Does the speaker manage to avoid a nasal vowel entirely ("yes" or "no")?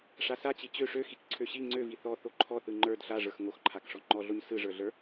yes